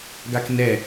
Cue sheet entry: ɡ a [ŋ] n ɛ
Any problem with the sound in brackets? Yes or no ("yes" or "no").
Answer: yes